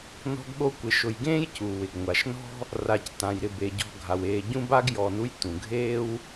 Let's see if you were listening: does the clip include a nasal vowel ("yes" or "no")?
yes